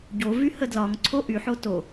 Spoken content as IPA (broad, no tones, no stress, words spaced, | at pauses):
ɟovy hədlɒŋǀʰo ʔy ħoto